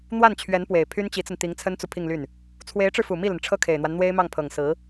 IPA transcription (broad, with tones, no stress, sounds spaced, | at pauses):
n̪ w a˥˩ n t͡ɕʰ ɥ ɛ˧˥ n p w e˨˩ ɪ̯ pʰ y˥ n t͡ɕ i˧˥ t͡s ə˧ n t̪ i˧˥ ŋ t͡sʰ ə˥ n t͡s u˨ pʰ i˥˧ ŋ l y˥˩ n | t͡sʰ w e˧˥ ɪ̯ ʈ͡ʂ ɻ̩˧ f u˨˩ m i˥˩ l ə˩ n ʈ͡ʂʰ ɤ˥ kʰ e˨˩ ɪ̯ n̪ w a˦ n n̪ w e˥ ɪ̯ m ɑ˥˩ ŋ pʰ ɤ˨˩ ŋ s ɹ̩˧˥